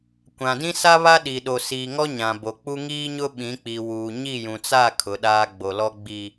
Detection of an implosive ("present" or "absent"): present